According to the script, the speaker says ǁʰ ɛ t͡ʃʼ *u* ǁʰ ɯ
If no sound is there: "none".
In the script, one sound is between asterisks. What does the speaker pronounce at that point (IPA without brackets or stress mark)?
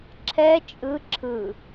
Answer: ɯ